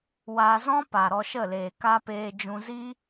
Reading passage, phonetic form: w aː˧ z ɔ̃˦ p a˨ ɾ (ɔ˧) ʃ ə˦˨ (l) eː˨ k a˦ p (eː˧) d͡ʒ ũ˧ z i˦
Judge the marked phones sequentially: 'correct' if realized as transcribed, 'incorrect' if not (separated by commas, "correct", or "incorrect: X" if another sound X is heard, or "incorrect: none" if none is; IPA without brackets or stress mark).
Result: correct, correct, correct